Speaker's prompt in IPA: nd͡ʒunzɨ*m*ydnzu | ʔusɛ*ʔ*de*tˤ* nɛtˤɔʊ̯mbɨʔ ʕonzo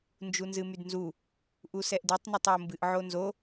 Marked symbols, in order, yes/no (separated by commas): yes, yes, yes